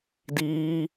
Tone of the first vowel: high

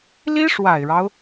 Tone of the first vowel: high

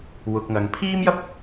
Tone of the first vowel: low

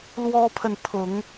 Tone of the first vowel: high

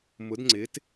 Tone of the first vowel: rising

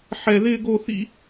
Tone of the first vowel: high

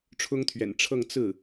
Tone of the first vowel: high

